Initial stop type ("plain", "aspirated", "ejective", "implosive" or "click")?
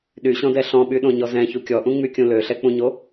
implosive